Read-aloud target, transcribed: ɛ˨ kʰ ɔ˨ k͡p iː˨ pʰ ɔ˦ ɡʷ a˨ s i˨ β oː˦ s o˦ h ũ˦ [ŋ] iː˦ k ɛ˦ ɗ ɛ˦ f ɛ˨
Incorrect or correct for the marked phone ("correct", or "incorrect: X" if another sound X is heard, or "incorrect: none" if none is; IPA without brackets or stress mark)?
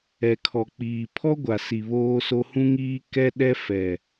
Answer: correct